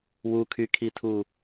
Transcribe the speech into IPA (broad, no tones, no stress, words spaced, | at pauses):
wukʰykʰitʰu